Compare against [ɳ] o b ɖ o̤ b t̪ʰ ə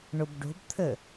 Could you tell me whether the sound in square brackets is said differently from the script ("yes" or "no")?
no